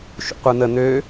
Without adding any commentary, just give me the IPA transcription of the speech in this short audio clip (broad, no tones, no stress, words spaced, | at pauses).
ʃṵqʷɯn̪ə n̪ø